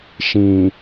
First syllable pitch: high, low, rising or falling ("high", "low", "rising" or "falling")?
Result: low